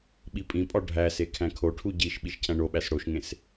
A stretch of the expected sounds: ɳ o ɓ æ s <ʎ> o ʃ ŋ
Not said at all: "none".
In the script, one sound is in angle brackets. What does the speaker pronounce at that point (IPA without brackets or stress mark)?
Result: ɽ